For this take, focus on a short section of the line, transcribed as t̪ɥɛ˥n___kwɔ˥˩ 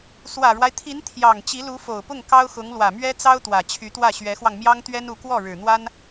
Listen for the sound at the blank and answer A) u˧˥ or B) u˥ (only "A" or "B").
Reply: A